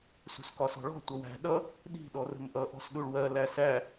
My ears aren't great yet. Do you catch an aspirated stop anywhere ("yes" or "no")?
no